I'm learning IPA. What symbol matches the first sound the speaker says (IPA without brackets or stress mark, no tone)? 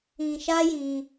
ĩ